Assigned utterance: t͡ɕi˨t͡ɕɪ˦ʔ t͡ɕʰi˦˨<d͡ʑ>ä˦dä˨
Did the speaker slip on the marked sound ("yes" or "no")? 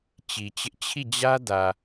no